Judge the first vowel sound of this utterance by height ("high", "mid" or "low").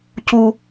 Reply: high